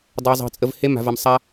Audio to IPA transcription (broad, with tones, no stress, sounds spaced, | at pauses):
dˤ a˦ zˤ ɑ̤˧ t͡sʼ ə˧ v h e˦ m a̤˧ v a˧ m sˤ a˦